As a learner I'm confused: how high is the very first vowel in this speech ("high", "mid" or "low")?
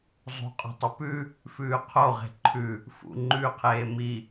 high